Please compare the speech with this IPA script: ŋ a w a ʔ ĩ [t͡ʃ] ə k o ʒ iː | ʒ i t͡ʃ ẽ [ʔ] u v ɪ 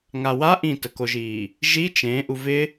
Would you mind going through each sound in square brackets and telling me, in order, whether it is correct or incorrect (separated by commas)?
incorrect, correct